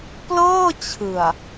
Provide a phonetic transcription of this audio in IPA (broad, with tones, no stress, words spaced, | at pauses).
plɤː˥˩t͡ɕʰɯ˨˩a̯